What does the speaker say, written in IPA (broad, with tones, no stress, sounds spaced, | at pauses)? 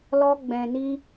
l ɔ˦ ɡ͡b ɛ̃˧ n i˦